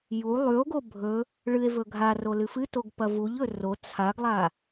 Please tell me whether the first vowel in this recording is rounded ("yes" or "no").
yes